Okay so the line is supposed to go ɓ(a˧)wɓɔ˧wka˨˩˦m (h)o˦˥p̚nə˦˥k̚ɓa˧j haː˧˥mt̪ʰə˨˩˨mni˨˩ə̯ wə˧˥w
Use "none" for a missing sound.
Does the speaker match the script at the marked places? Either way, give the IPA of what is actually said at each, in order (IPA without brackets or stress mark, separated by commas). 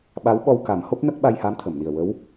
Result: a˧˥, h